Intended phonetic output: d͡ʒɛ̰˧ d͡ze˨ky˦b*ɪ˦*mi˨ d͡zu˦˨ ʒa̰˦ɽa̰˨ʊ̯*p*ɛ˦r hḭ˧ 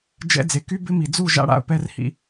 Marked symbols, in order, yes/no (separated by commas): yes, yes